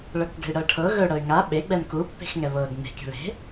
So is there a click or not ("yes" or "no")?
no